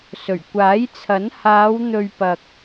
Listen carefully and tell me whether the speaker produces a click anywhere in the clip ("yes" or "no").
no